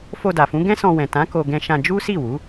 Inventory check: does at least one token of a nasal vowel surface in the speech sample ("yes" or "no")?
yes